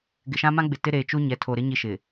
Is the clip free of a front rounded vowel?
yes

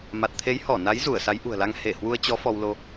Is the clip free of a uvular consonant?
yes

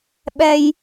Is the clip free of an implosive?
no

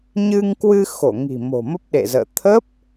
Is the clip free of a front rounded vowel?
yes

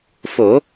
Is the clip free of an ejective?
yes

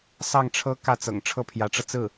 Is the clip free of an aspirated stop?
no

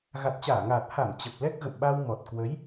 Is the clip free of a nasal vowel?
yes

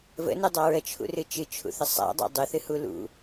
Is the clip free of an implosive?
yes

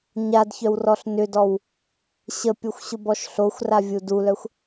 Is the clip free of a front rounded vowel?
no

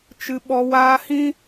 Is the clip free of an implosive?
no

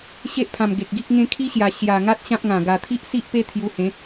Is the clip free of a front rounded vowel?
yes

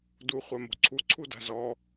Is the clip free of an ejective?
yes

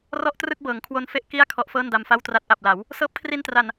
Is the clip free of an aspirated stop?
no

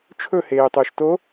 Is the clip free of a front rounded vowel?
no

